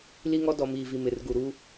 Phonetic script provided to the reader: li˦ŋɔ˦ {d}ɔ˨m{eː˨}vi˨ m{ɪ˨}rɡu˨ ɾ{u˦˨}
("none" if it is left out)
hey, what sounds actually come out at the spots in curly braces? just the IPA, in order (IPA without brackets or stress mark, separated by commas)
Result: d, iː˨, ɪ˨, u˦